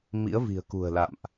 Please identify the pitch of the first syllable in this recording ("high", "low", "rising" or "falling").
rising